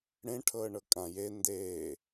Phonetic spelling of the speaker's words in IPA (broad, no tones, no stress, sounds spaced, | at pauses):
ɽ ẽ ʈʰ ɤː ɳ ɤ kʼ ã j e n d eː